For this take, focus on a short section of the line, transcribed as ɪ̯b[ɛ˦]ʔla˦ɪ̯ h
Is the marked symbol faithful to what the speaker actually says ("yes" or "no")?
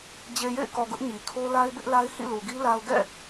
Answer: no